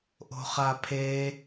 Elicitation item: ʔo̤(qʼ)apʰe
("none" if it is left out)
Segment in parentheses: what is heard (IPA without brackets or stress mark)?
χ